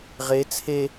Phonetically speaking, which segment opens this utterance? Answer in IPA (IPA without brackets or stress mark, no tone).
ʁ